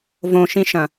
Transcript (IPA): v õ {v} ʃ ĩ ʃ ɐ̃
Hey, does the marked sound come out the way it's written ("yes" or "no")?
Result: no